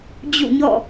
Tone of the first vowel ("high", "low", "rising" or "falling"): falling